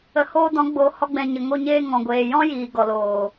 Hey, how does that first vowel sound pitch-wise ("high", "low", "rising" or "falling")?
low